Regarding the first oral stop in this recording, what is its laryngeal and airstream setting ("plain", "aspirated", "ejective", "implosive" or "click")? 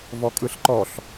ejective